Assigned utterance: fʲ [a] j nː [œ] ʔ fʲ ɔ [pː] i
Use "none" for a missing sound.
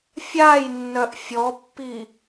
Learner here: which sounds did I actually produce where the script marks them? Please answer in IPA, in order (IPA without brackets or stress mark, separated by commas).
a, œ, pː